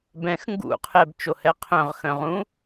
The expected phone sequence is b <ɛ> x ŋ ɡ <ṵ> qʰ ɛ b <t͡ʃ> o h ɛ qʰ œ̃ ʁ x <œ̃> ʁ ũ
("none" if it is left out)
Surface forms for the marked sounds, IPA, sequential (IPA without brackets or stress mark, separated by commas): ɛ̃, ṵ, t͡ʃ, œ̃